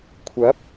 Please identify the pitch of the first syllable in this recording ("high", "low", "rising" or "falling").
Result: rising